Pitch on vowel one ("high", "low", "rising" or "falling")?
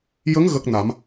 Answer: rising